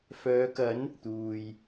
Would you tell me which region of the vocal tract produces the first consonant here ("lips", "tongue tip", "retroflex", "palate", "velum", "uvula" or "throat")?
lips